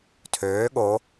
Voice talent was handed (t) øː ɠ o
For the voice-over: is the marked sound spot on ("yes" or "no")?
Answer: no